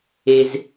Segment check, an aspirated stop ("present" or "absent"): absent